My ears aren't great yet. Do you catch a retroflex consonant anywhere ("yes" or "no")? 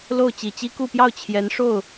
yes